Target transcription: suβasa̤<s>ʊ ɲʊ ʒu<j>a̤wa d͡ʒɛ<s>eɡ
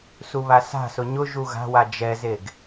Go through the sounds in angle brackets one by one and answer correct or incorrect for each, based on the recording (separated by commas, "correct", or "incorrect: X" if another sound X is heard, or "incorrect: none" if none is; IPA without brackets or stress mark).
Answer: correct, incorrect: ɣ, incorrect: z